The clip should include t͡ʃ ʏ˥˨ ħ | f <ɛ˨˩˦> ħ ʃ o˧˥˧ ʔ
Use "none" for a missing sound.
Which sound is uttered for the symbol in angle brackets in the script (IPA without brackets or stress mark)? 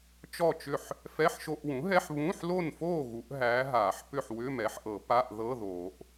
ɛ˧˥˧